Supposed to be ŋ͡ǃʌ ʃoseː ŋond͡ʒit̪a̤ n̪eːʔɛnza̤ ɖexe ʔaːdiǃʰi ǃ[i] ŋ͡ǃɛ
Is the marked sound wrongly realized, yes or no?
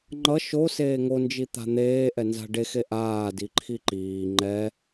yes